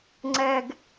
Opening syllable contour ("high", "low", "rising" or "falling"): low